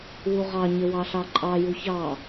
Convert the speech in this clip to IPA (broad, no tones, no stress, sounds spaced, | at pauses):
w u ʁ ɑ ɲ ə w ɑ ɬ ɑ ǃʼ ɑ j u ç ɑ